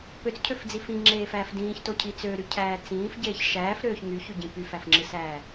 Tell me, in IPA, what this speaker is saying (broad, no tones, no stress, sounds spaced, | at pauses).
p ø t͡s cʰ ø f d͡z i f ĩ ŋ͡ǁ eː f æː f d ĩː ç t o cʰ i t͡s ø ɾ y cʰ æː t͡s ĩː f ɟ eː ç ʃ æː f ɾ øː ç ŋ y ç y ɟ ĩ p y f æ f ŋ͡ǁ ɯ s æː